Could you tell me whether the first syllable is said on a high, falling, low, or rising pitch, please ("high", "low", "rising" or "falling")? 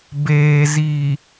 low